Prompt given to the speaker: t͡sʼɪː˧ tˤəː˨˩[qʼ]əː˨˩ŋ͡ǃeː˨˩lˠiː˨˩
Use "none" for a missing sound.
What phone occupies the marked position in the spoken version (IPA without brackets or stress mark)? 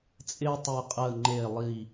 qʼ